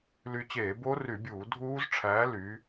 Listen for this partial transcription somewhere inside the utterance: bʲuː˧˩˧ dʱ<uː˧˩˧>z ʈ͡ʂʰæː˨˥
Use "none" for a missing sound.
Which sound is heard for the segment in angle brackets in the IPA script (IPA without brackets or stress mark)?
uː˦˥